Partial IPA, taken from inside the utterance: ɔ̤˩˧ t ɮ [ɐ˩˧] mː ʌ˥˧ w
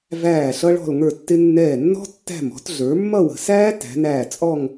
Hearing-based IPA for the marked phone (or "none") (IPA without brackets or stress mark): ə˞˩˧